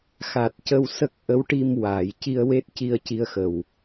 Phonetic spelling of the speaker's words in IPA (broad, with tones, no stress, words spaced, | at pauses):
xa˨˩t̚cə˧w sə˦˥k̚ʔə˧˥wʈi˧m waː˨˩˨jci˧ə̯we˦˥t̚ci˧ə̯ ci˧ə̯xə˨˩w